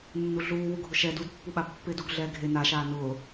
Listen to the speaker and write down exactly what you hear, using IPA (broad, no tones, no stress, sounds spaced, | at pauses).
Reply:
nː u ɮ uː w u ɡʱ ʊ ʃ ɛ d u d pː u ɓ a pː ɪ d u ɡ ɮ ɛː ɡʱ e n a ʃ aː n ʊː